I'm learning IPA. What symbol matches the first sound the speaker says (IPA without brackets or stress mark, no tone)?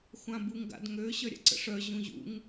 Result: xʷ